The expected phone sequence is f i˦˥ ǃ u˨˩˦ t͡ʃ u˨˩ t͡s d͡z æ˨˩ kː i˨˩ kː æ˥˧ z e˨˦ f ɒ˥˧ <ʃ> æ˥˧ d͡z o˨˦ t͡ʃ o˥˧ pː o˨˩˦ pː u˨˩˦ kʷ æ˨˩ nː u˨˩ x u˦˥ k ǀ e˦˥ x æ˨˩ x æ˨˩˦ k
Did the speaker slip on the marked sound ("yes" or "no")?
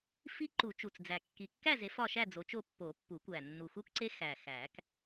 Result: no